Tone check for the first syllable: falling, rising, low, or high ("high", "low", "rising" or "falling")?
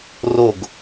falling